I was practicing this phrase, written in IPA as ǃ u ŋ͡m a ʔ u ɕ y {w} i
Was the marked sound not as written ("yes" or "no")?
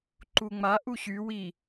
no